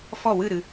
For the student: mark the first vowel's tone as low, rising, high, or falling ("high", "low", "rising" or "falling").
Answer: falling